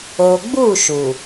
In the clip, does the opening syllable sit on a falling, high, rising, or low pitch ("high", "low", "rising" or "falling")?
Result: low